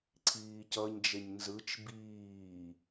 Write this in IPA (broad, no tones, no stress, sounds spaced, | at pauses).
ǀʰ iː c ʌ ɲ d͡ʒ e ɲ n z ɯ t͡ʃ b iː